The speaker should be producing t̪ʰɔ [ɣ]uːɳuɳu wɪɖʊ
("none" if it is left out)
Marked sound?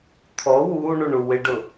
w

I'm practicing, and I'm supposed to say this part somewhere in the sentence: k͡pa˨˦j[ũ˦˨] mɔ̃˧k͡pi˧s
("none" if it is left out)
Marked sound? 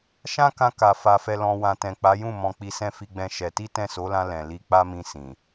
ũ˦˨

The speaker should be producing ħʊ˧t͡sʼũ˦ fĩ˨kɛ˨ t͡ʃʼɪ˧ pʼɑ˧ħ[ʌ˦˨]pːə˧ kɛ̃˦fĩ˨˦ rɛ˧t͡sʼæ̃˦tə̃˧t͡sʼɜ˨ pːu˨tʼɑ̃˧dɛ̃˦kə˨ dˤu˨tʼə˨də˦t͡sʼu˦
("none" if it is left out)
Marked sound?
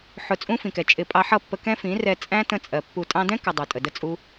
ʌ˦˨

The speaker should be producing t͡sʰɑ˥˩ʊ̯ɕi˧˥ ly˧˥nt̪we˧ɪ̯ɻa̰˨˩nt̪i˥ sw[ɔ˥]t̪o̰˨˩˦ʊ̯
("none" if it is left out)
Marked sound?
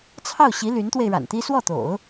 ɔ˥˩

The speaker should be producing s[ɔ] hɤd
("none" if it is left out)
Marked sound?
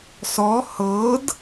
ɔ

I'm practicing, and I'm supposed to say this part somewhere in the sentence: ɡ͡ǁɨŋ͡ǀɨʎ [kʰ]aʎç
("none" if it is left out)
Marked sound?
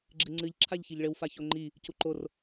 ǁʰ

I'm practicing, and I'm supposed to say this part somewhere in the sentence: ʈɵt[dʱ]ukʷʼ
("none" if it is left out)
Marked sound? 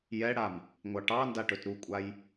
ɾ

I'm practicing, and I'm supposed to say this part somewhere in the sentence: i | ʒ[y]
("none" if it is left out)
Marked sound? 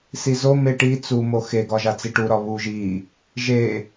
e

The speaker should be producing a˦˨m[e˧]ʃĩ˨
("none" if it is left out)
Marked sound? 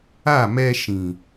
ɛ˧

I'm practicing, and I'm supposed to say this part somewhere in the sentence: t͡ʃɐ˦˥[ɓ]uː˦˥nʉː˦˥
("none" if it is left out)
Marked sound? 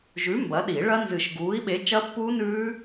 pː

